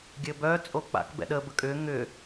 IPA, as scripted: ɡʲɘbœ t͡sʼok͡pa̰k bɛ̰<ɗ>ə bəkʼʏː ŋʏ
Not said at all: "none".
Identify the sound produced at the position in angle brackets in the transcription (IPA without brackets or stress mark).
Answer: ɗ